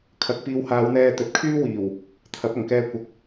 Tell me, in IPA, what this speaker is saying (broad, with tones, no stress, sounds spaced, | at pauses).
kʰ ɐ˨˥ k̚ p iː˨˧ w h aː˨˧ w n̪ ɛː˧ t̪ ɵ˨ t̚ kʰ yː˥ w iː˨˩ w | t̪ʰ ɐ˨˥ p̚ ɐ˨˩ ŋ k ɛː˧ kʷ ɐ˨˥ k̚